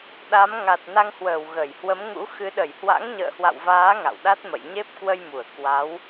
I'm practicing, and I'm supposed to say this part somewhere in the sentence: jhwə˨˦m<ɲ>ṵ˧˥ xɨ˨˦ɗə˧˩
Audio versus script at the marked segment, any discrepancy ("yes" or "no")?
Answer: yes